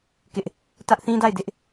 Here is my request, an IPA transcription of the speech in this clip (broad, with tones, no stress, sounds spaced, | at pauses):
k ɪ˦ ʔ | t ä˦ ʔ θ ĩ˦ d a˦˨ ɪ̯ d ɪ˦ ʔ